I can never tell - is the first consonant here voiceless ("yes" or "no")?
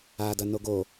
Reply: no